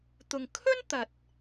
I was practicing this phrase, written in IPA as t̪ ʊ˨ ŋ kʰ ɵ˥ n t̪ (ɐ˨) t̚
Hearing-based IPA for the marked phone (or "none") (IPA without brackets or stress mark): ɐ˨